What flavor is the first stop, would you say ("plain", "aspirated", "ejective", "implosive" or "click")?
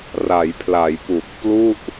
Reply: aspirated